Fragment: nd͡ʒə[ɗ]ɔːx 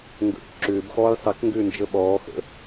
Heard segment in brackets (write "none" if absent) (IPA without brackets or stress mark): ɓ